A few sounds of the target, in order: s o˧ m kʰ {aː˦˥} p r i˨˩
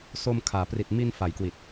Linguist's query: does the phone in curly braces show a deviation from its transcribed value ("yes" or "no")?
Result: yes